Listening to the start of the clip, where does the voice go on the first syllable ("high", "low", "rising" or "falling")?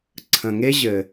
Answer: low